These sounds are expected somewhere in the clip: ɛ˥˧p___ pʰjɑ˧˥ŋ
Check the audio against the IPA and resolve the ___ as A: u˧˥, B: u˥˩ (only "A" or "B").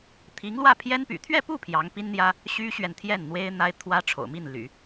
B